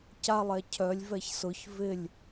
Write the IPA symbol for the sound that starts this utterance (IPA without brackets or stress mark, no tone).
c